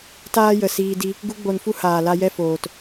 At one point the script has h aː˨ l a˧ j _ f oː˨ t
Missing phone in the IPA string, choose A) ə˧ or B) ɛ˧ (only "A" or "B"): B